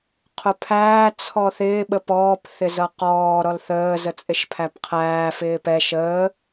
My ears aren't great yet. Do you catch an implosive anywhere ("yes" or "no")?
yes